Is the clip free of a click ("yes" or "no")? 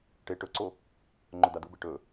no